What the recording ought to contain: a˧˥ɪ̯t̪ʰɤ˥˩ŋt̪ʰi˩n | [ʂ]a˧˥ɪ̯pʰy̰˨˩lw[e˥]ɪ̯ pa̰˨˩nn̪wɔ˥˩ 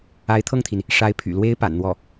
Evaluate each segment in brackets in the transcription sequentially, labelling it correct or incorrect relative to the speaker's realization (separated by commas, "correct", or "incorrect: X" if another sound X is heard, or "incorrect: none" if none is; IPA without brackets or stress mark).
correct, correct